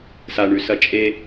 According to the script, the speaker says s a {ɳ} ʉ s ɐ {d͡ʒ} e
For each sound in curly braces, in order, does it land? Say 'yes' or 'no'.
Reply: yes, no

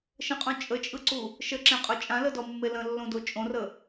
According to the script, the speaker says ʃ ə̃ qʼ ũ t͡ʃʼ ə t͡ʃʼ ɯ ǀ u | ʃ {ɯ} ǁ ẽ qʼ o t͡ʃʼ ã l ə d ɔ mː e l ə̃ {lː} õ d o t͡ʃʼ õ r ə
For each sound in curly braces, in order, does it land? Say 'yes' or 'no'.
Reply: no, yes

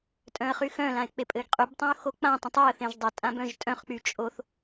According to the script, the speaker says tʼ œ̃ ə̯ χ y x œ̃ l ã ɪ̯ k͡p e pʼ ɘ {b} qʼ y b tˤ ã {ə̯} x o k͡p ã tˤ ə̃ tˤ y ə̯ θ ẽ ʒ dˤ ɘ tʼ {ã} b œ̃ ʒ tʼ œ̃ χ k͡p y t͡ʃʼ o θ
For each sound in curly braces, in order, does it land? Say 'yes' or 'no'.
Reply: no, no, yes

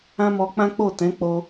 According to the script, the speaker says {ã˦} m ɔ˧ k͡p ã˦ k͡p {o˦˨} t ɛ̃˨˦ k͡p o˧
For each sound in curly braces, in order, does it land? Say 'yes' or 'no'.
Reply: yes, yes

